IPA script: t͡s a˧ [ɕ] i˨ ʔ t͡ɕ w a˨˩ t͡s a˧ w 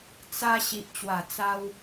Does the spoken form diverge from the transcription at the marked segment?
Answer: no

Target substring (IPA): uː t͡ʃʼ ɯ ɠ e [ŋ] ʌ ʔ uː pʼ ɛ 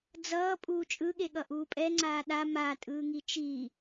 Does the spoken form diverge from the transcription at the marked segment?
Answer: yes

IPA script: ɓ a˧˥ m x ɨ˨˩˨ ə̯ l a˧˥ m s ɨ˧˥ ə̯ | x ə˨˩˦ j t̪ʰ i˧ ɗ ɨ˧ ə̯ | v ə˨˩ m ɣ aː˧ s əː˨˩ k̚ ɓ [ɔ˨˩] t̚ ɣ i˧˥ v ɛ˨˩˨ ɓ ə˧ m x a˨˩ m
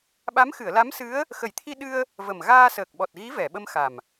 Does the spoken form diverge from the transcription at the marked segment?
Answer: no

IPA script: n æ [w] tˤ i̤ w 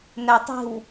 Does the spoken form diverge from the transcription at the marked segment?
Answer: yes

